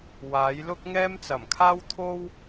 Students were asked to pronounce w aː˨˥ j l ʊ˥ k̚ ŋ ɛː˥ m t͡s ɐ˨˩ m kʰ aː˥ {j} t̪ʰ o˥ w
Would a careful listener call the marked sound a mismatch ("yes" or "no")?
yes